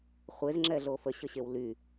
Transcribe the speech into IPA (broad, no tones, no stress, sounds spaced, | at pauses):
χʷ e z ŋ͡ǁ ɛ ɮ o f ə ɕ ə ɕ e w l y